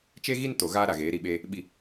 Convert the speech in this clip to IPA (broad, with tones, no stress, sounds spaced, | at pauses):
t͡ʃ e˦ ɣ i˦ n t o˨ ɣ aː˦ ɾ a˨ ɣ eː˨˦ ɾ i˨ ɓ eː˦ | ɓ i˨